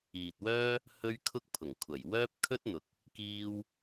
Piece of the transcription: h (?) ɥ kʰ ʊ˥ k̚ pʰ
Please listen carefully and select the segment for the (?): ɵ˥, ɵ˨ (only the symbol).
ɵ˥